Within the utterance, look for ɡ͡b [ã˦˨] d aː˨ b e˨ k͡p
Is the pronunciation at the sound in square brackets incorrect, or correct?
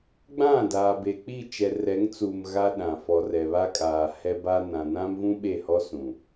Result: correct